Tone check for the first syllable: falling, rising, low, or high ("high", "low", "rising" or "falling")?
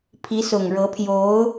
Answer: rising